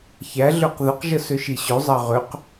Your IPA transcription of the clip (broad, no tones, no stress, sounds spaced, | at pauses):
ç æ ɮ ø q ð ə q ʒ ə s ø ʃ i ɕ ø zˤ ɑ ʁ ø q